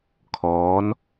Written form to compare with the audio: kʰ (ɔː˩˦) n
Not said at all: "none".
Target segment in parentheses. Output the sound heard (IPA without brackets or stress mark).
ɔː˦˥